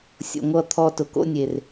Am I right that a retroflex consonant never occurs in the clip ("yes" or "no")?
yes